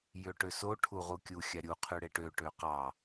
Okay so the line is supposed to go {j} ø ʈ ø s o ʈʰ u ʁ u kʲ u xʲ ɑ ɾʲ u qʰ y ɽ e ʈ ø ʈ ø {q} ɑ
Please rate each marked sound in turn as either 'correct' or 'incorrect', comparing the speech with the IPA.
correct, correct

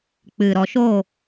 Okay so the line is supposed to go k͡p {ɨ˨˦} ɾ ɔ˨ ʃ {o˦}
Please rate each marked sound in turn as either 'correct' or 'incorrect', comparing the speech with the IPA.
incorrect: ɨ˨, incorrect: o˦˨

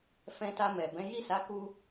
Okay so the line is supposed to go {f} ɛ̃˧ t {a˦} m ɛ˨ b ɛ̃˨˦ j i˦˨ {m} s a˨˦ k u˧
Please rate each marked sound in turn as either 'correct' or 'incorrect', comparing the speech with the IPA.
correct, incorrect: a˧, incorrect: none

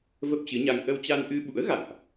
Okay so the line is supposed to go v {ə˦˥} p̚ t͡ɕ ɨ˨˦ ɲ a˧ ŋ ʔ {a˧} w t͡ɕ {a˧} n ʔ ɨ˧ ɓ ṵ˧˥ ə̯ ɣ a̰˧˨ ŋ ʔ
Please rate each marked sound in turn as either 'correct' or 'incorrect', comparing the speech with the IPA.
correct, incorrect: ə˧, correct

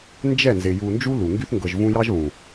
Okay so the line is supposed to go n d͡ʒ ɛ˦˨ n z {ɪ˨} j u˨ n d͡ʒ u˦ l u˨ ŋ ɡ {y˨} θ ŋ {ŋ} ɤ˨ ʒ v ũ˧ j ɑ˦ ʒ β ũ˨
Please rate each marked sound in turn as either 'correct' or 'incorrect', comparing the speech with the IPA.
correct, incorrect: y˧, incorrect: ɡ

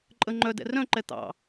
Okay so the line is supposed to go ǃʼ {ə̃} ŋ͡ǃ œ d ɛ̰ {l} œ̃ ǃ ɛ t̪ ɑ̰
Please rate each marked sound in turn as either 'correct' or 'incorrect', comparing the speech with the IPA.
incorrect: ə, incorrect: r

